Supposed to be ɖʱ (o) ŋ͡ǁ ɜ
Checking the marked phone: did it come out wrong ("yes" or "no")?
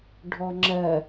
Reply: yes